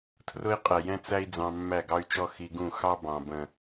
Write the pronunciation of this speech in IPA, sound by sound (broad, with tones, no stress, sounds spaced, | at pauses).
tʰ r ʊ˦ i̯ qʼ ɛ˨ j ɛ̃˦ t͡s æ˦ i̯ d͡z ɑ̃˧ mː æ˦˨ ɡ ɑ˦ y̯ t͡ʃ ɔ˦ x i˧ ɡ ũ˦˨ x ɑ˦ b ɑ̃˨ b ə̃˨